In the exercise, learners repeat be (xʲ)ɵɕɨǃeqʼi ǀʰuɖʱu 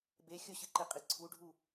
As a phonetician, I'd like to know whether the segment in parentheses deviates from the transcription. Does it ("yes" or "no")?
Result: no